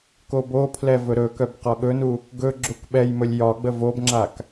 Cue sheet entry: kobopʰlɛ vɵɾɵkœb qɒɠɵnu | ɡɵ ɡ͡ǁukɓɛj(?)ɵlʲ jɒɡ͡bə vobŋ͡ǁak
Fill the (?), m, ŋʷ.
m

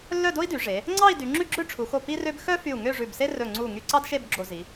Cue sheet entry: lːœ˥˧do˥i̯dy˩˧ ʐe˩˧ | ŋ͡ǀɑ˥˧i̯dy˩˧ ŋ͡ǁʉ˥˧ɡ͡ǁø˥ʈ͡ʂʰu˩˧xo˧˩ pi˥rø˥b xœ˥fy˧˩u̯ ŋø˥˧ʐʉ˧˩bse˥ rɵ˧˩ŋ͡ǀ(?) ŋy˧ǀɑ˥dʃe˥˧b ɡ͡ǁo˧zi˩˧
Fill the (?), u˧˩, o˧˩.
u˧˩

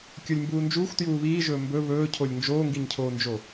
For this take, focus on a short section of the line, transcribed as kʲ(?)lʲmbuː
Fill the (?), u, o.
o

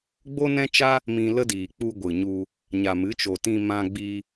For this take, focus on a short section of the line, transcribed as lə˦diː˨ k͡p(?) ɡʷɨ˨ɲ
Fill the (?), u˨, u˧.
u˧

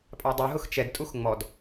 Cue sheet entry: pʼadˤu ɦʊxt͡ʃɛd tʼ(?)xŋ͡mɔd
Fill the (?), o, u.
u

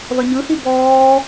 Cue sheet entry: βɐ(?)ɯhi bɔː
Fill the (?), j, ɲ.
ɲ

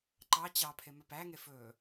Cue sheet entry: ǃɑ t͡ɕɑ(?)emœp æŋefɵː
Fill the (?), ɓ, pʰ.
pʰ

